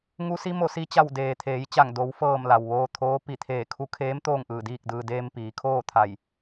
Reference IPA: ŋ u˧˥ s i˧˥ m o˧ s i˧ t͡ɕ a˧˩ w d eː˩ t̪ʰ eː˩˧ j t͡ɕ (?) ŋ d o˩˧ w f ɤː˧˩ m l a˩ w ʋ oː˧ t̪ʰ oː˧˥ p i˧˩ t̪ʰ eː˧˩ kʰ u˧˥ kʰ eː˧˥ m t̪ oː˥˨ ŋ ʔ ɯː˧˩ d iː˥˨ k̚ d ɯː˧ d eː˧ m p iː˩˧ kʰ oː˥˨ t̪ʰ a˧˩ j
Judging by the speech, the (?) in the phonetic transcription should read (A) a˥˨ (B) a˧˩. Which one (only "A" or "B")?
B